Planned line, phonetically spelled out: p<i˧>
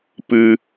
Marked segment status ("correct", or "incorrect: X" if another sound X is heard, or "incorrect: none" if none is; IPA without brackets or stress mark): incorrect: ɨ˧